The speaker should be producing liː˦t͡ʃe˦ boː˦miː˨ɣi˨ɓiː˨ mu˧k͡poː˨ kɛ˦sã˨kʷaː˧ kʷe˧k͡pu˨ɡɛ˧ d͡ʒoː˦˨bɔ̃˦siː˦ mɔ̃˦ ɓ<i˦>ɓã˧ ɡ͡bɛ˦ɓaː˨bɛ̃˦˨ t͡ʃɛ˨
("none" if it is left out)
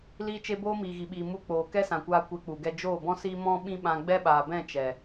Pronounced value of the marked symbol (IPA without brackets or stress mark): ĩ˦